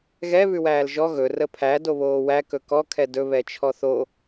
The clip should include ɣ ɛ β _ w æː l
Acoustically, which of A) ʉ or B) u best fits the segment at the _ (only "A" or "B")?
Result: A